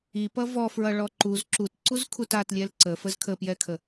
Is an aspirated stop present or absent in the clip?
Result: present